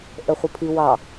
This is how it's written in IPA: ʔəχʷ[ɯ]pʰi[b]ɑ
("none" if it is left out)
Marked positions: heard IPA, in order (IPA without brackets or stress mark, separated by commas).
ə, w